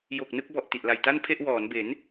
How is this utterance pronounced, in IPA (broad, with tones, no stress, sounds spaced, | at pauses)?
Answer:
j o˨˩ k̚ n ɯ˥˩ k̚ b ɔ˨˩ ʔ t i˨˩ ʔ l a˨˩ j t a˥˩ n pʰ e˥˩ ʔ w ɔː˩˦ n b e˩˦ n